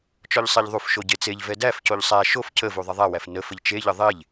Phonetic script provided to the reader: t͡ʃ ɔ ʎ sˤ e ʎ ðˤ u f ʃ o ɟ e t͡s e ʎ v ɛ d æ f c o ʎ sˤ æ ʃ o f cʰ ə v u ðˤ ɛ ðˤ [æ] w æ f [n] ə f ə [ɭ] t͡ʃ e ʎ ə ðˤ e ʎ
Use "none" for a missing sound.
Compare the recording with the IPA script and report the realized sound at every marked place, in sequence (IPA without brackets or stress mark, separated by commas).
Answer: æ, n, ʎ